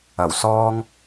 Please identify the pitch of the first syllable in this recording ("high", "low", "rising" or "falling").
low